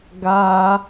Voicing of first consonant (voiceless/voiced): voiced